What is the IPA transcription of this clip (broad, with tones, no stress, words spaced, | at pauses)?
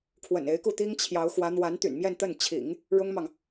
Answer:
kʰwə̰˨˩ne˧˥ɪ̯ku˥˩ t̪i˥ŋ t͡ɕʰjɑ˧˥ʊ̯xwä˧˥ n̪wa˧˥nt̪y̰˨˩nmjɛ˥˧nt̪ə˥˩n t͡ɕʰḭ˨˩˦ŋ | ɻʊ˥ŋmɑ˨ŋ